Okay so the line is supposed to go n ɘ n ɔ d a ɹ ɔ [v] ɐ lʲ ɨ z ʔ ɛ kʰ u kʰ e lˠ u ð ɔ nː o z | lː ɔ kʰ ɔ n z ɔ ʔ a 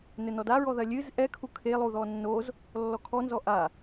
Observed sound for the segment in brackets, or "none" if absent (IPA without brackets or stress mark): ð